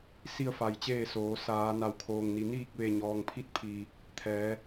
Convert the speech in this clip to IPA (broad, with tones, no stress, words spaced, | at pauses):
si˥˨ə̯ fa˧˩jt͡ɕeː˥˨soː˩˧ saː˩˧ na˩wkʰoː˩ŋni˩ niː˥˨k̚ʋe˧˩ ɲɔː˩ŋpʰi˧˥t̚pʰiː˩ | t̪ʰɛː˩˧